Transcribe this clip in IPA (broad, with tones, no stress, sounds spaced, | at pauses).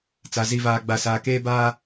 t͡s a˨ z i˨ v aː˨ ɡ͡b a˨ s aː˨ k eː˦ b aː˦